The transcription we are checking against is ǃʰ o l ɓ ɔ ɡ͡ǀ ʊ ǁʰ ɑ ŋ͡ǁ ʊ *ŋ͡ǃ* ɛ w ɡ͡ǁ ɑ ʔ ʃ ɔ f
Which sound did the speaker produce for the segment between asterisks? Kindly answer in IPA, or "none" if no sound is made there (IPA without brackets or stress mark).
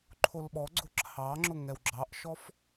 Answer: ŋ